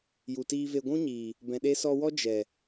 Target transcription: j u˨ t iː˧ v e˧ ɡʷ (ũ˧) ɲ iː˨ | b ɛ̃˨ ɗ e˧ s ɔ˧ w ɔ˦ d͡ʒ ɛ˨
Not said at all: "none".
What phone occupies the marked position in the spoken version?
ũ˦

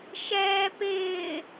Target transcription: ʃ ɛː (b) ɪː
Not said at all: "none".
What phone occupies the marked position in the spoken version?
p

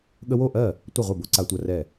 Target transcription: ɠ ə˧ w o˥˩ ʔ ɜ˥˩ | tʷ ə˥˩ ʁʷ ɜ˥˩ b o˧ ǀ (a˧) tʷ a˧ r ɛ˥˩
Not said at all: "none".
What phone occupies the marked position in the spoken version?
a˧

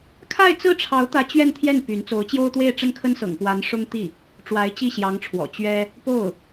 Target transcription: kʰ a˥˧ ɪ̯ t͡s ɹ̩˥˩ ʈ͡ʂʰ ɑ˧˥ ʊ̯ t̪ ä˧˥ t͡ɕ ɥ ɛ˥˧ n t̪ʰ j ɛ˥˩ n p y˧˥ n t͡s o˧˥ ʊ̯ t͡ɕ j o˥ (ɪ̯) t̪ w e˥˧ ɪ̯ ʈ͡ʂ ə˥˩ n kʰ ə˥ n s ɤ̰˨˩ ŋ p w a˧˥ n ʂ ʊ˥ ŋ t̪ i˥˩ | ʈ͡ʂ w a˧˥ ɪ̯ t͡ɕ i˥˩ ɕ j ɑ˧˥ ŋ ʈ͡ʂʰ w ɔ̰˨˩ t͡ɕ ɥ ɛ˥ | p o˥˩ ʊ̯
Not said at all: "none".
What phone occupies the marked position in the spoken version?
ʊ̯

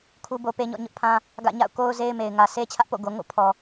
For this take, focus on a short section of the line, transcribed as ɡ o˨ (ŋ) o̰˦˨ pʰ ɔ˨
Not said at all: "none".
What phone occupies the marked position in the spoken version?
ŋ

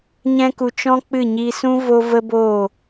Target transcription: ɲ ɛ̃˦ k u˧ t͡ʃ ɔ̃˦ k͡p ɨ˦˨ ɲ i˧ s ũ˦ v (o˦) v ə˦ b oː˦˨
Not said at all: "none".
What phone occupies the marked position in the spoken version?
o˦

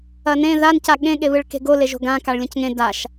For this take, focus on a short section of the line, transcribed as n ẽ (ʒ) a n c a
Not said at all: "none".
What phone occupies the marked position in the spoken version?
ð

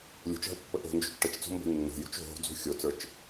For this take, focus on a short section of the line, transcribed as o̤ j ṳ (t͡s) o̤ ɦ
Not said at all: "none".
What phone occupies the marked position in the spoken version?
t͡ʃ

